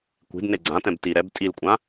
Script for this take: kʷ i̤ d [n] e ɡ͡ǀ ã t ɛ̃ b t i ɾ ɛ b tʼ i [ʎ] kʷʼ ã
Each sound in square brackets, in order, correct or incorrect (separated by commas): correct, incorrect